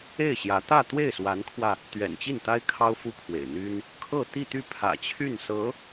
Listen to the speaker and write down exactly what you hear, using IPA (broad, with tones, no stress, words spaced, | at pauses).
e˥˩ɪ̯ɕjä˧˥ t̪ä˥˧t̪we˥˩ɪ̯swa˧˥nkʰwä˧ | t̪ɥɛ̰˨˩nt͡ɕi˥˩nt̪a˥ɪ̯ kʰɑ˥ʊ̯fu˥kʰwḛ˨˩ɪ̯n̪y˥n | kʰɤ˥˧ t̪i˥˧t̪y˥˩ pʰä̰˨˩t͡ɕʰy˥˩nsɤ˧˥